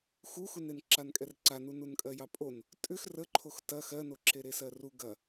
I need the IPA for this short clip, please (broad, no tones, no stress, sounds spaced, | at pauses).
x u x u n e n ǁ a n kʼ ɛ r ǀ a n u n u n kʼ ɜ j ɑ pʼ o n | tʼ ʏ x r ə ǃʰ o x t ɐ x ɜ n o ǁ e ɾ e s ɜ r u ɡ ɐ